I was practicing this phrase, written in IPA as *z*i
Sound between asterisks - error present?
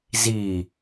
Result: no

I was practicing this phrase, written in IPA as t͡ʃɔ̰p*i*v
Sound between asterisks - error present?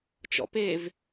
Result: yes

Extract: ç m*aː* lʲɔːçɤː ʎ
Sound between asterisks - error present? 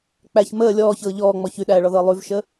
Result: yes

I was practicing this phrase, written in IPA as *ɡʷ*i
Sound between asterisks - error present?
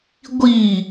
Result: no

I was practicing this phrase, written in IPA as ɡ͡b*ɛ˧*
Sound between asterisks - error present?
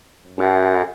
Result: yes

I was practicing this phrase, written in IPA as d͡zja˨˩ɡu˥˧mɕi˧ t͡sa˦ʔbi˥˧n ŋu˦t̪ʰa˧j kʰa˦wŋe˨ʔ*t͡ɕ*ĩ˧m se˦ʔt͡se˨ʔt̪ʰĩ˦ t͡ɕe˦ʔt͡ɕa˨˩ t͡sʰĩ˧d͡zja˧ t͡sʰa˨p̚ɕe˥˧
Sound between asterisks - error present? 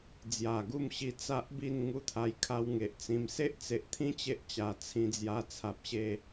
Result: yes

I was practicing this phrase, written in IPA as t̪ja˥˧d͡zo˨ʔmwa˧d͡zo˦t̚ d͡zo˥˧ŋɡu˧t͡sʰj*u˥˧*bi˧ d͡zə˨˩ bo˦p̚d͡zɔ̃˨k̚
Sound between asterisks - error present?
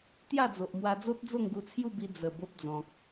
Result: no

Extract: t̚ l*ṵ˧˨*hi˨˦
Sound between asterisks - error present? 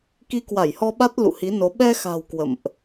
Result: no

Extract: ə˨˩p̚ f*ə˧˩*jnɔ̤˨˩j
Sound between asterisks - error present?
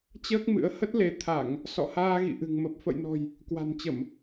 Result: yes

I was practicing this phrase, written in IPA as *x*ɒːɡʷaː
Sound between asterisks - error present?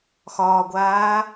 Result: no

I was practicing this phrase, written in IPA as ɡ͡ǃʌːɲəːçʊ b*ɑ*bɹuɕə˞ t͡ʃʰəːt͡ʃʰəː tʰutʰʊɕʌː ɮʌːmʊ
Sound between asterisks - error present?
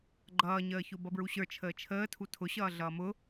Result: yes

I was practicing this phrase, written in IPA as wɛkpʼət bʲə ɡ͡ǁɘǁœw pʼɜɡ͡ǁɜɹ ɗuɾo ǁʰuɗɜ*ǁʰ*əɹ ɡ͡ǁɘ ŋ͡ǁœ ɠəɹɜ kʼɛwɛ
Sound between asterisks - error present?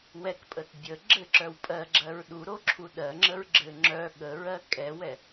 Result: yes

